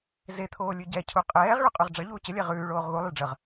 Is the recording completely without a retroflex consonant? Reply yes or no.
no